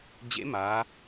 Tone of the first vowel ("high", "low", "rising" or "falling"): rising